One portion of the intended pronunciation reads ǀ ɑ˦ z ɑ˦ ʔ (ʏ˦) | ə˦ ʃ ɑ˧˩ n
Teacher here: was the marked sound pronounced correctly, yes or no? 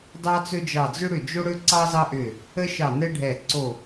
no